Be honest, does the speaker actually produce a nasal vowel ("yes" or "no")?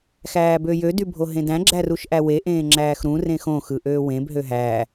yes